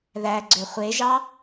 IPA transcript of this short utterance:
ð æ ɡ͡ǀ ø χʷ e ʒ ɑ

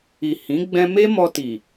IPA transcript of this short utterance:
i˨ h ĩ˨˦ ɡ͡b ɛ̃˧ m e˦ m ɔ˧ t i˨

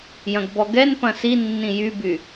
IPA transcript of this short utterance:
j ɐ̃ ɡ b ɔ ɡ ɛ n p ɐ̃ s i nː ĩ j y b y

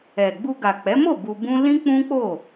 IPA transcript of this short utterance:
ɛ˨ ɡ͡b u˧ ɡ a˨ k͡p ɛ˨˦ m o˦˨ b u˧ b ũ˦ l ĩ˦ k͡p ũ˦ k͡p o˦˨

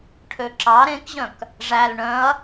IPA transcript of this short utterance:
ʈʰ ø ǁ ɑ ɾ ẽ k ʑ œ̃ k | ʐ æ l ɳ œ̃ ɐ̯

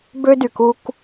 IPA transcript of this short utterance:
b ø˦ d y˨ k u˦ k

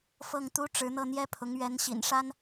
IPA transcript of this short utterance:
f ɤ˥˩ ŋ t̪ u˥ ʈ͡ʂ ɻ̩˧˥ n̪ ɤ˥˩ n̪ j ɛ˥ pʰ ʊ˧˥ ŋ ɥ ɛ˧˥ n ɕ ḭ˨˩ n ʂ a˥ n

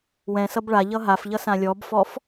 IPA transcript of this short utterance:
w ɛ̃ s ʌ b ɭ a ʎ ʌ ɦ a f ʎ ʌ s ã lʲ ɔ b f ɔ f

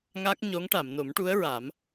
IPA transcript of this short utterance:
ŋ a˦˥ k̚ ɲ o˧˥ ŋ ʈ a˨˩˨ m n o˨˩˦ m ʈ u˧˥ ə̯ ɹ a˨˩˦ m

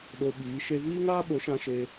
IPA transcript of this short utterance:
ɗ o˧ ɓ iː˨˦ ʃ e˧ v iː˦ ŋ aː˦ ɓ o˨˦ ʃ ã˧ ʃ e˧

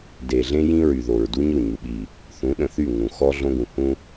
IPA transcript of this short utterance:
d e˨ ɮ ẽ˦ j ĩ˦ ɹ y˨ ð o˨ ɹ d u˦ ɲ o˦˨ ɲ u˨ ɓ i˨ | θ ũ˨˦ ɗ ə̃˨ θ y˦˨ ŋ ũ˨ x ɔ˦ ɮ õ˦ ɡ ũ˨ h ũ˦

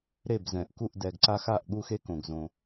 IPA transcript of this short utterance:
ɾ e˧˩ b z ɛ̃˩ ʔ k u˧˩ ʔ d ɛ˩ ɡ ǀ a˧ x a˧˩ ʔ ɠ u˧ x e˧ k õ˩ ɡ z õ˩

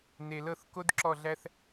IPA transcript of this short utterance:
n e˧ l ɤ˥˧ θ k o˥ d ǁ ɔ˥˧ ɮ æ˥ θ

